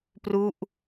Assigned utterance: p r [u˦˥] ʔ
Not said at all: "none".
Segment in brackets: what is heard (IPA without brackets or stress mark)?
u˥˩